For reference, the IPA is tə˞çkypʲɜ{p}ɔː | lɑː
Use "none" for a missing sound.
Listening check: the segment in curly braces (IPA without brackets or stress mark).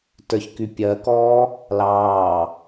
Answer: k